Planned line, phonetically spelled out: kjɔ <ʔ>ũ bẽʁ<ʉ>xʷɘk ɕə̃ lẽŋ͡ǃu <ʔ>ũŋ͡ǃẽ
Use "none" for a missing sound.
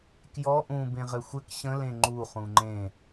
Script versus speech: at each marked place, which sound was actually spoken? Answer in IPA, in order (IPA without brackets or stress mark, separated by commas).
ʔ, ɘ, χ